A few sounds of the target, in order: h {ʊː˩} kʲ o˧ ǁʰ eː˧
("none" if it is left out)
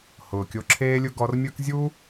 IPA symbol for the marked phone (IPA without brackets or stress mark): ʊː˩